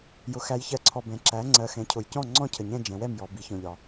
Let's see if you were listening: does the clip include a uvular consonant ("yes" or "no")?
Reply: no